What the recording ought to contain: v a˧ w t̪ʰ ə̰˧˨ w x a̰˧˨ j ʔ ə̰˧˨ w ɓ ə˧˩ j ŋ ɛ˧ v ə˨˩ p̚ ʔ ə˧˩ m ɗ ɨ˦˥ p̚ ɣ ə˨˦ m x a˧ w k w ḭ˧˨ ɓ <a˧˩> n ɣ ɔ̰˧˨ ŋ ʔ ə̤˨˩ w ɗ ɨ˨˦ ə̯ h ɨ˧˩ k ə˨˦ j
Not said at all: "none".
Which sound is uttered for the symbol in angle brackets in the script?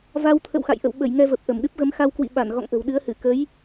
a˧˩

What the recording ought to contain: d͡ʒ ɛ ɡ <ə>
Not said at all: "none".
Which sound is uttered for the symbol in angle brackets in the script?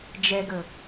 ə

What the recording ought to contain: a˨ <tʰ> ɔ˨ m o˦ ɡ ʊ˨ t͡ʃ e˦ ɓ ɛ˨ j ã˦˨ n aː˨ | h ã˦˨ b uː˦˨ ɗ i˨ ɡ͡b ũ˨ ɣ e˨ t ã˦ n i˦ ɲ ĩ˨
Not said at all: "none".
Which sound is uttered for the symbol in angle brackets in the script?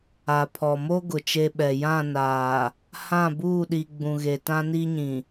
pʰ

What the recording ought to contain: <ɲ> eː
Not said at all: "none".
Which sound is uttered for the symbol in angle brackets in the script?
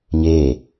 ɲ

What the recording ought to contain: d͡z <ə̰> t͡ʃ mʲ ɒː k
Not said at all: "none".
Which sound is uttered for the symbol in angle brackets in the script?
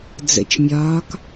ə̰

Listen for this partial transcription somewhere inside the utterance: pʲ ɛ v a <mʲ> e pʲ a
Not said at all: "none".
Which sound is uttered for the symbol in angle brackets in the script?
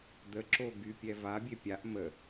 bʲ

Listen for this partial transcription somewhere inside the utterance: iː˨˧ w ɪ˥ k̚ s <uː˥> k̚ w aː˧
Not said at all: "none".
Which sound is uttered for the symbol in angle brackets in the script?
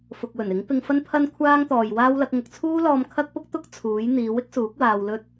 uː˨˥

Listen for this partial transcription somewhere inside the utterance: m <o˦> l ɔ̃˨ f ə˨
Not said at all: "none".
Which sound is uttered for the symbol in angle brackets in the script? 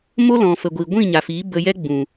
o˦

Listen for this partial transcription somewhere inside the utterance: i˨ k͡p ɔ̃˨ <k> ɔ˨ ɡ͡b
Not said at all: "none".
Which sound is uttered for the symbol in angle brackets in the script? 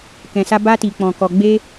k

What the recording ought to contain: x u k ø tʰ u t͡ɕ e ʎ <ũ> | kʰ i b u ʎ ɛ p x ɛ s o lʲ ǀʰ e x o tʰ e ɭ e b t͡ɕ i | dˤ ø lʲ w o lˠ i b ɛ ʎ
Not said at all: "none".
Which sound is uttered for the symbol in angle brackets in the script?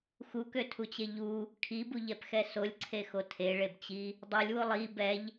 u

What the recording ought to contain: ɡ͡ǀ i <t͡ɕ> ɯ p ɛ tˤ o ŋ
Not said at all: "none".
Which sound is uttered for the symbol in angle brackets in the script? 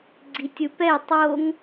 tʲ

